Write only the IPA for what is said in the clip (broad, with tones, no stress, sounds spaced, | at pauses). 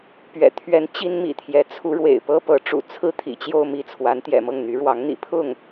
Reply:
p ɥ ɛ̰˨˩ t̪ʰ ɥ ɛ˧˥ n t͡ɕ i˥ n m ḭ˨˩ t̪ʰ j ɛ˧˥ t͡sʰ u˧˥ ɻ w ḛ˨˩ ɪ̯ p ɤ˥ p ɤ˧˥ ʈ͡ʂ ṵ˨˩ t͡sʰ ɹ̩˥ t̪ʰ ḭ˨˩ t͡ɕ j o˥˧ ʊ̯ m i˥˩ t͡sʰ w a˧˥ n t̪ j ɛ̰˨˩ m ɤ˥˩ ŋ n̪ y˧˥ ɻ w ɑ˧˥ ŋ n̪ ḭ˨˩ pʰ ʊ˥˩ ŋ